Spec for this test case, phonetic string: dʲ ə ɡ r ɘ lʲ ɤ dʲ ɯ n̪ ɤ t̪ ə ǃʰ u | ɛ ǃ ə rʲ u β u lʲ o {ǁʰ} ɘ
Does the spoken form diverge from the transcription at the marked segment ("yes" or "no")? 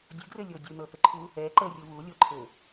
yes